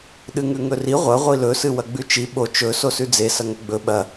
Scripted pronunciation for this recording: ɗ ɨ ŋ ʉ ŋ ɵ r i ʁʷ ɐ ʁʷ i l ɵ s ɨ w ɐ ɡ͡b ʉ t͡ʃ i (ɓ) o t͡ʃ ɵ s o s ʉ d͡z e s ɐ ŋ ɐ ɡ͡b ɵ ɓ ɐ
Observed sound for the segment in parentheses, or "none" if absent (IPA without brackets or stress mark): ɓ